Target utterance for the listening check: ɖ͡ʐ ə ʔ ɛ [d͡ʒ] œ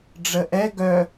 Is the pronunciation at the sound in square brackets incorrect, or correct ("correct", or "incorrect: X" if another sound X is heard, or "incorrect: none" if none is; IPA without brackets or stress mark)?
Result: incorrect: ɡ